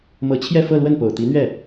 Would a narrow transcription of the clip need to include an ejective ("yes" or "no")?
no